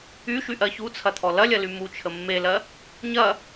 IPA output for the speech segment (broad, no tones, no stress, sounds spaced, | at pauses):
y ʃ y ʔ ɜ ç u t͡sʰ ɐ t̪ʰ ɔ l ɐ lʲ ɐ l y m u t͡ʃʰ ə mː e l ɜ | ɲ ɐ